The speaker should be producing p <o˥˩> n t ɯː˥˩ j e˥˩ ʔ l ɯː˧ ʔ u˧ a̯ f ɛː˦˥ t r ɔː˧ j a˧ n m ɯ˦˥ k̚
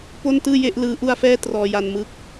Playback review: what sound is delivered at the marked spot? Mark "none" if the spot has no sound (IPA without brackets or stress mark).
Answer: o˥˩